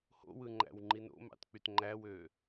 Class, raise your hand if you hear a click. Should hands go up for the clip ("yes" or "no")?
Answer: yes